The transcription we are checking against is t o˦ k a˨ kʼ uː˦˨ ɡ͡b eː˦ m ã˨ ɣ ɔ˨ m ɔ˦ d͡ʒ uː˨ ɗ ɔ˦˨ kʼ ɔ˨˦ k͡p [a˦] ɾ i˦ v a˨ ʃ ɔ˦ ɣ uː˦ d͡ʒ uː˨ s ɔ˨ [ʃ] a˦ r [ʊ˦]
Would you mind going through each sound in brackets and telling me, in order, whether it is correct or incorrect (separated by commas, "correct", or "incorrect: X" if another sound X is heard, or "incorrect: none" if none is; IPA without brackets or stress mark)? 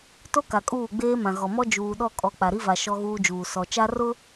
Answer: incorrect: a˨, incorrect: t͡ʃ, correct